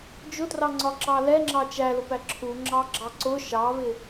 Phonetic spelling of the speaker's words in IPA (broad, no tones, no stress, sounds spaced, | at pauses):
d͡ʒ ʊ t r ɑ ŋ͡ǀ ɒ ǁ ɑ l ɛ ŋ͡ǁ ɑ t͡ʃ æ l ʊ p æ ǁʰ u ŋ͡ǁ ɑ ɡ͡ǁ ɑ ǀ ʊ ʃ ɑ β ɪ